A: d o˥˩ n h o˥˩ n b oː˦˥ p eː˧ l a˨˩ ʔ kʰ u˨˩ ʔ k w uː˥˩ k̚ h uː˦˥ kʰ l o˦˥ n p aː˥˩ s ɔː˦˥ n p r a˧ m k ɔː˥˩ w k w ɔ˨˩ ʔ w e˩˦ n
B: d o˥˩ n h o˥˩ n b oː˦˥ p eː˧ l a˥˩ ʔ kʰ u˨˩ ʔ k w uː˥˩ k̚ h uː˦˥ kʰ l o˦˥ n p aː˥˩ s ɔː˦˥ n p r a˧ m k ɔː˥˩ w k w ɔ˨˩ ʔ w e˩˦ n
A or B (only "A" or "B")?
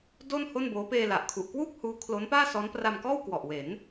A